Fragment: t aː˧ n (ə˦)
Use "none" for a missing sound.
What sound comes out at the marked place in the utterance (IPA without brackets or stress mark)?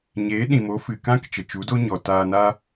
a˦